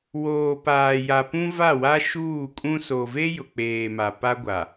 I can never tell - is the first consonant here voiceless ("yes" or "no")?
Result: no